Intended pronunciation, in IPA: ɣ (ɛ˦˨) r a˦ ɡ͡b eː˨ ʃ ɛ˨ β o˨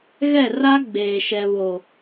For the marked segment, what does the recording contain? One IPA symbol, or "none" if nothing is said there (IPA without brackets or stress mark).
ɛ˦˨